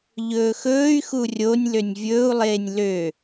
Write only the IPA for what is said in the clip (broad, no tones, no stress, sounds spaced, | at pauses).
ʎ ɵː x ɵː y̯ x u rʲ o nʲ l ø nʲ vʲ ɵː u̯ lˠ eː nʲ l ø